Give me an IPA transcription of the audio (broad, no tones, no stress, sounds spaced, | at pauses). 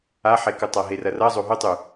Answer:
a ħ e k ɵ tˤ a ɦ e r ɐ r ɐ zˤ o ɦ o tˤ ʉ